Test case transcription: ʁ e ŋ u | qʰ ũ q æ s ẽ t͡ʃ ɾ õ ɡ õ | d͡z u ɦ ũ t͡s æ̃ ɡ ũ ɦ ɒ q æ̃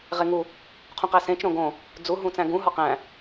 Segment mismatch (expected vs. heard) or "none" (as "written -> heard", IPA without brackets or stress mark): none